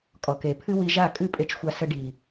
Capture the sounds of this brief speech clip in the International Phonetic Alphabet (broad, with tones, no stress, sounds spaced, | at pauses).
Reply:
kʼ ɔ˨ k e˨ pʰ ɨ˦ w i˧ ʒ a˦˨ kʼ ɨ˦ pʼ e˧ t͡ʃ xʷ a˧ s ə˧ ɖ i˨